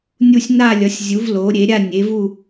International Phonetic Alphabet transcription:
nʲ u˥˧ sʲ n a˥˧ lʲ ʌ˨˥ sʲ zʲ u˨˥ v l o˨˥ ɾʲ e˨˥ ɾʲ a˥˧ nʲ e˨˥ v u˥˧

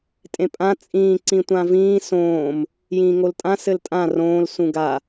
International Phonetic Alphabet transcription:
tʼ ẽ pʼ ã t͡sʼ ĩː ǀ ĩ tʷ ã v ĩː s õː m | j ĩː ŋ o l tʼ ã s ɘ l tʼ ã r õː l s ũ ɡ a

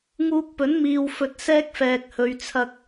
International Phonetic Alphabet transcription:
ŋ uː˧ k̚ p ɵ˨˥ n m iː˨ w f ɵ˧ t̚ s ɛː˥ k̚ f ɛː˨ k̚ h ɵ˨˧ ɥ t͡sʰ ɐ˧ k̚

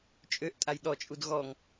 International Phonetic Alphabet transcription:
t͡ʃʼ ø ʔ tʼ a j ɗ ɔ t͡ʃʼ u d ɣ ɔ ŋ

